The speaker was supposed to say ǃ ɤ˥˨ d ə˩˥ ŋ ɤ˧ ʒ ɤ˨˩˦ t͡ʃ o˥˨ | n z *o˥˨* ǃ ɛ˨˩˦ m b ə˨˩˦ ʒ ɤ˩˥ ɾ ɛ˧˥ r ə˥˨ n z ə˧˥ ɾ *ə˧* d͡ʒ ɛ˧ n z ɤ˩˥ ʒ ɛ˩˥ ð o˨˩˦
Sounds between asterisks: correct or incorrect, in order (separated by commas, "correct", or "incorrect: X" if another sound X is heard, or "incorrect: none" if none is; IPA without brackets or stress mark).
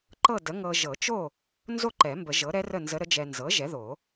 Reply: correct, incorrect: ə˧˥